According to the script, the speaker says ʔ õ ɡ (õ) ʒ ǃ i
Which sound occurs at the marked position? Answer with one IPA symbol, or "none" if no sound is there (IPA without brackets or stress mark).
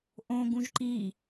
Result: ũ